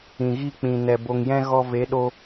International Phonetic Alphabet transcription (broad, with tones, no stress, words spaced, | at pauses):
ĩ˨ɣi˦˨k͡pĩ˨nɛ˨ bo˨ŋjɛ̃˧ ɣɔ˧ ve˨˦ɗo˧